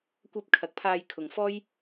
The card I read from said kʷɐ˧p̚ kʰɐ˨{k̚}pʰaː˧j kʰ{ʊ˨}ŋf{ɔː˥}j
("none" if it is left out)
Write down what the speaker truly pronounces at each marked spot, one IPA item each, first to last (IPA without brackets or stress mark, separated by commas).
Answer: k̚, ʊ˨, ɔː˥